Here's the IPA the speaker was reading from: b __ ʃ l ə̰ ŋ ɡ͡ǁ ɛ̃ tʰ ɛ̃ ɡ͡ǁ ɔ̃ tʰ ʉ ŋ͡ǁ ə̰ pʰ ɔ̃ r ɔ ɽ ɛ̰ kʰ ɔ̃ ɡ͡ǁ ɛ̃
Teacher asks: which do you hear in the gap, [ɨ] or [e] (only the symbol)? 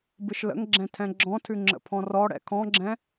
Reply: ɨ